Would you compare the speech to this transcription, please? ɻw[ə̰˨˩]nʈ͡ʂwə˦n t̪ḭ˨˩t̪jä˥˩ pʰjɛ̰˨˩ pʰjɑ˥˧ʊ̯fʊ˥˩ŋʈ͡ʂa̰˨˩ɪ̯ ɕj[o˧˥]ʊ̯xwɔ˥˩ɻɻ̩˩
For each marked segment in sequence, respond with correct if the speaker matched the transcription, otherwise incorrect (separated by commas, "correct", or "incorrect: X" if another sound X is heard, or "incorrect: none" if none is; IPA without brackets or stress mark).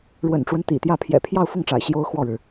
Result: correct, incorrect: o˥